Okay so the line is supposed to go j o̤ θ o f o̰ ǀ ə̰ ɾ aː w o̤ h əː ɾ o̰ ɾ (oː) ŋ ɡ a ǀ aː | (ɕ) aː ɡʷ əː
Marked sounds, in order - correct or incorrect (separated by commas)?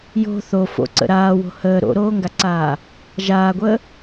correct, incorrect